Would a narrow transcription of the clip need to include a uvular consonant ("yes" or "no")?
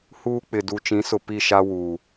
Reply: no